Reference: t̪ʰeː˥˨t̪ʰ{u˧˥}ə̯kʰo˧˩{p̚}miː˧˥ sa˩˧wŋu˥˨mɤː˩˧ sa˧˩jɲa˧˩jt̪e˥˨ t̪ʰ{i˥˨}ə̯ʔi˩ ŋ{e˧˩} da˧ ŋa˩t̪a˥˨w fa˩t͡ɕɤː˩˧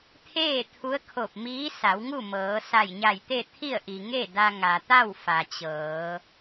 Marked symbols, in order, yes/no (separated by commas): yes, yes, yes, no